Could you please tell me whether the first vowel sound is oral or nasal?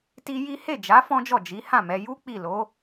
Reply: oral